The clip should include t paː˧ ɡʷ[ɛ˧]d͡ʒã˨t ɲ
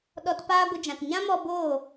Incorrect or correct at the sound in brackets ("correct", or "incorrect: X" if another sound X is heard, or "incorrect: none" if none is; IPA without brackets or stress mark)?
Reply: incorrect: ə˧